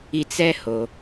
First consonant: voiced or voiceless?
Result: voiceless